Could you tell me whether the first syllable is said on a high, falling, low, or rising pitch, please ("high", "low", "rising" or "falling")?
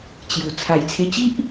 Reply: low